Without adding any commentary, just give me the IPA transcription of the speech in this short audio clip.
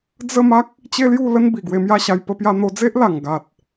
d͡zə˥˧ma˦k̚ | t͡ɕe˦lju˥˧ lə˦n bi˨˩ɡwe˧mja˥˧ɕa˧j pə˧pja˧n̪o˧d͡ze˦ʔ la˨˩ŋɡa˨t̚

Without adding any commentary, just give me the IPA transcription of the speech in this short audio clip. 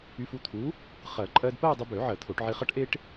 y˧fu˥˧ t̪ʰu˨˥ | χɜ˨˩˦ǃʼɜ˧dpɜ˥˧ dˤi˧bø˨˩˦ ʕɜ˨˩˦t̪ʰo˨˩˦ʈʕi˧χʌ˥ʈ ʔe˥ʈ

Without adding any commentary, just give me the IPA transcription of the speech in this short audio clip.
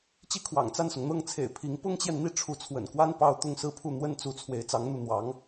t͡ɕi˥kʰwɑ̰˨˩ŋt͡sa˥˩nsʊ˩ŋ n̪ɤ˥˩ŋt͡sʰḛ˨˩ɪ̯ pʰi˧˥ŋ pʊ˥ŋt͡ɕjɛ˨nn̪i˥˩ ʈ͡ʂʰu˧˥t͡sʰwə̰˨˩nkwa˥n pɑ˥˧ʊ̯ t̪ʊ˥˧ŋsɹ̩˥˧pʰu˥˩ n̪wə˥nt͡su˧˥ t͡sʰwe˧˥ɪ̯t͡sɑ˧˥ŋn̪u˥˩ n̪wɑ˧˥ŋ

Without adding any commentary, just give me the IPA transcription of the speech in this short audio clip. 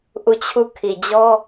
ʔu˦˨t͡ɕʰu˦˨ kʰi˨d͡ʑɔ˦

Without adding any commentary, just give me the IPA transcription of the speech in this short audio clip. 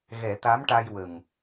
ɣɛ˨˩˦t̪a˧˥mʈa˧jwə˨˩ŋ

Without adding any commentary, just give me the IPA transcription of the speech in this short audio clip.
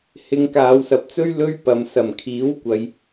hɪ˧ŋkaː˨˧wsɐ˨p̚t͡sɵ˥ɥ lɵ˥ɥpɐ˨msɐ˨˩m kʰiː˨˥wkʷɐ˨˧j

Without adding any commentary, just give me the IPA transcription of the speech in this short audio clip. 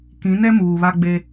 kĩ˨˦nɛ˦ muː˨βa˦ɡ͡be˦

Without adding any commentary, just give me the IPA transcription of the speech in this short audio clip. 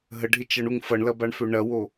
ɦəɖʱɪt͡ʃʌɳuŋ fʌɳlɐbaɳfø ɳɐwo

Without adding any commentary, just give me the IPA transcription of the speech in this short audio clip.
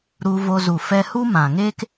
ɾu˧vo˧zu˨ fɛ˧hu˦mã˨ŋeː˦k

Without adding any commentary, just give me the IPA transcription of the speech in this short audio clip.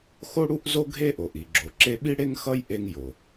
xo˥ɽu˥ʔzo˥ɡʱe˥ ʔo˩ʔi˩ɡ͡ǁo˩ ǁe˥ ɓi˥ɽe˥ŋxʌ˥j ʔe˥ŋjo˩

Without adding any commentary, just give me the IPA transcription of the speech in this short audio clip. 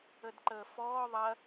ədǃəːfɔː ðˤɐ

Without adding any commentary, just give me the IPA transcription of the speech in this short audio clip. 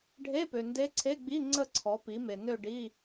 ɖʱe˧˥˧pø˨ nde˧˥ǀʰe˧˥˧ɡ͡bi˧˥˧ ŋ͡ǀə˥˧ǀʰɔ˩˥pi˩˥me˨ nø˥˧ɖi˧˥˧

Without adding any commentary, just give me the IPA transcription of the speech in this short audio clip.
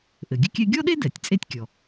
ʔɘ˩ɡʲɘ˥kʲɛ˥ ɡʲɔ˥ɗe˥dɛ˩tʲ t͡sʼe˥tʲkʲɔ˩

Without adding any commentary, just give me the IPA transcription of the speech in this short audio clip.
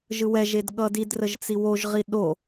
ʒɯwɛʒed ɠʌdidrəʒ t͡siwoʒʁi ɗo

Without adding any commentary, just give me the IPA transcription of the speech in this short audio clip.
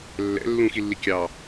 lːɛ̰ lːũxilːi kʲɑ

